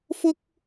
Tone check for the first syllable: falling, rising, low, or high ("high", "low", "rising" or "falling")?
high